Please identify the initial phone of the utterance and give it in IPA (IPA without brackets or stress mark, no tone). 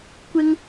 kʷ